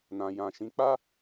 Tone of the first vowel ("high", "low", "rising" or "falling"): low